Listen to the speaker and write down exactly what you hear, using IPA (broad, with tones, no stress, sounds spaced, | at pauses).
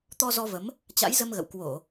t̪ ɔ˧ z ɔ˧ v ə˨˦ m | t͡ɕ a̰˧˥ j z ə˧ m ɣ ə̰˧˨ w k w o˧˩˨